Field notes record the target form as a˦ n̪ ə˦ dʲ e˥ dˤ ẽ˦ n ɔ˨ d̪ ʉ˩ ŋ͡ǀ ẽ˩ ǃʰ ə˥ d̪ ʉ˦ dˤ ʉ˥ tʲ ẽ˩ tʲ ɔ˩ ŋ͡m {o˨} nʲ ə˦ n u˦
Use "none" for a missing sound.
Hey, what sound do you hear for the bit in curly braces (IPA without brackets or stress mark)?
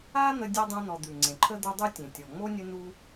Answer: o˥